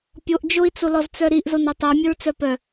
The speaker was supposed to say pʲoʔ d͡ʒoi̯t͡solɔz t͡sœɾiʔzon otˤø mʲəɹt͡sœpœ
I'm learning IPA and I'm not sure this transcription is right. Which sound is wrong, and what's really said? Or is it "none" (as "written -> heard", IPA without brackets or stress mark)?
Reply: none